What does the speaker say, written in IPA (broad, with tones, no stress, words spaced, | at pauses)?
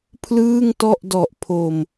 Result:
pʰlɯː˥˩ŋtɔ˥˩ʔdɔ˨˩ʔ pʰo˨˩m